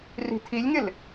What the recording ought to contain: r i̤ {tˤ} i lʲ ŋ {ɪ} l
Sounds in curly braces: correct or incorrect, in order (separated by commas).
incorrect, correct